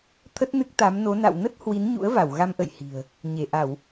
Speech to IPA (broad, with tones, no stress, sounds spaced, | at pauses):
t̪ʰ ə˦˥ t̚ n ɨ˦˥ k̚ t̪ a˨˦ m n o˨˦ n a̰˧˨ w n ə˦˥ t̚ h w i˨˦ n ɲ ṵ˧˥ ə̯ v a˧˩ w ɣ a˧ m ʔ ə̰˧˨ j h i̤˨˩ ə̯ | ɲ e˧˩ ʔ a˧˩˨ w